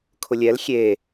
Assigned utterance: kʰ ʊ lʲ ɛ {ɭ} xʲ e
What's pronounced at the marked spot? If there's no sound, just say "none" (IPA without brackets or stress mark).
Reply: l